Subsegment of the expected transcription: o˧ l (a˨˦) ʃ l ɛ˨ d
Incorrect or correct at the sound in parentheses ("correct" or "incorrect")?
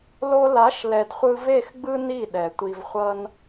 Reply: correct